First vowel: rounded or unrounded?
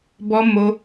rounded